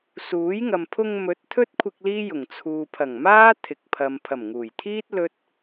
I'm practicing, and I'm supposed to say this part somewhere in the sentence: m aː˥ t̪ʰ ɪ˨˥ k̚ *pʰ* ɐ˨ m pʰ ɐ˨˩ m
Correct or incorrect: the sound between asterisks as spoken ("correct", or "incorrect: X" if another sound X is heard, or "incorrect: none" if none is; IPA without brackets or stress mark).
correct